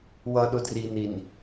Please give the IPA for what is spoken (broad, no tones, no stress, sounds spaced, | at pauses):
w ʌ ɗ ʊ d r i n i n